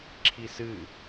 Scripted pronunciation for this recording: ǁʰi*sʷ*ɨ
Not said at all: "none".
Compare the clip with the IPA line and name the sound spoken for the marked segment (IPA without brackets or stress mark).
s